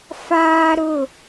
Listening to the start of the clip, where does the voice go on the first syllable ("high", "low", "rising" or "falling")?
high